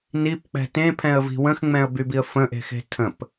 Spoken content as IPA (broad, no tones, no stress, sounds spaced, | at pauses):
n i p k͡p ɛ̤ t ẽ pʰ ɛ̃ ə̯ v i̤ w ə̃ x ŋ͡m ɛ̃ ə̯ b y b i ə̯ f ə̃ ʔ e̤ x e̤ tʰ ə̃ p